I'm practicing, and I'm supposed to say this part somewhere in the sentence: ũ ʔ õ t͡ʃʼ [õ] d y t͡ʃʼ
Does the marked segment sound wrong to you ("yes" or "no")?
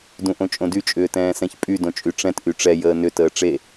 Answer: no